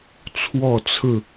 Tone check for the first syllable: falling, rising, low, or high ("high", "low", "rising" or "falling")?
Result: falling